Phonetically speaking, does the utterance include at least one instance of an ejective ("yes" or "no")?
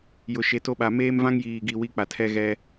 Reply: no